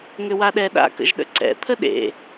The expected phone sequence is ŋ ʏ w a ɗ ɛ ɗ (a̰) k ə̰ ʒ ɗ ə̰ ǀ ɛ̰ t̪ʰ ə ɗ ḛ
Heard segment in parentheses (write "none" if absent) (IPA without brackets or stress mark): a̰